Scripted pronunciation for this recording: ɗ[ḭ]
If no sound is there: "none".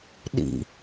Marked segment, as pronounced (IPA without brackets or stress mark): ḭ